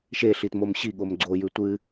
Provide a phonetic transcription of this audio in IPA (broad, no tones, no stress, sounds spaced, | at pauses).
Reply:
ʃ e ɬ i t m o m ɕ i ɠ o m ɡ͡ǀ o j ʉ tʷ ɨ